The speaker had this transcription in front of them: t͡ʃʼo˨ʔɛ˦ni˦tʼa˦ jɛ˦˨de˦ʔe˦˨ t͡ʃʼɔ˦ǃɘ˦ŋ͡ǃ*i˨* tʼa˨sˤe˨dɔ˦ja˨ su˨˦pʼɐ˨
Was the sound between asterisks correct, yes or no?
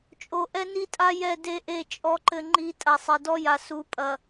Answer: no